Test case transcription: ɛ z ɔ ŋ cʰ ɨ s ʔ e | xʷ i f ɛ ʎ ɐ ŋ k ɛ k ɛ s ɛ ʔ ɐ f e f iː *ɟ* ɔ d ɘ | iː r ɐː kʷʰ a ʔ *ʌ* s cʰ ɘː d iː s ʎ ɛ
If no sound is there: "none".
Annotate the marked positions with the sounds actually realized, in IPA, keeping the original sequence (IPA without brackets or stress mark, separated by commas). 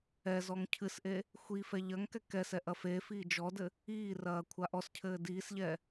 d͡ʒ, ɔ